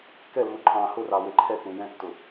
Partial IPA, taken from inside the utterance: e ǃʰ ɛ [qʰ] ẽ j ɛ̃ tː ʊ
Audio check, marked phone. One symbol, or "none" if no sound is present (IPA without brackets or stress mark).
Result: k